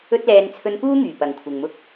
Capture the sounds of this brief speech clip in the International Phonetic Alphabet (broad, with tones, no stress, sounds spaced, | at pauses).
ɵ˥ t̚ l ɛː˧ n t͡sʰ ɵ˧ n p uː˥ ŋ yː˨˩ p ɐ˨ ŋ kʷʰ ɪ˨ ŋ m ʊ˥ k̚